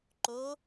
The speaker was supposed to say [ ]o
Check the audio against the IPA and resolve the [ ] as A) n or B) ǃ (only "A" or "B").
B